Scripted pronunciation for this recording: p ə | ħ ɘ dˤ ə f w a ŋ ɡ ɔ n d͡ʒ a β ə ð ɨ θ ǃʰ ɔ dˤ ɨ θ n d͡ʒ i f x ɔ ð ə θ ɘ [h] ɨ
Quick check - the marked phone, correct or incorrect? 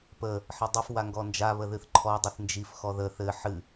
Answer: incorrect